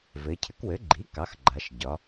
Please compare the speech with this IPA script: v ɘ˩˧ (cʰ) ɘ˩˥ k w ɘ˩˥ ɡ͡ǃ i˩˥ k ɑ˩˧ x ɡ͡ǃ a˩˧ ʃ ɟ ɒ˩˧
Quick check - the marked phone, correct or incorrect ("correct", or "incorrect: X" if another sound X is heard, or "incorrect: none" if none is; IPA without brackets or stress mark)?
correct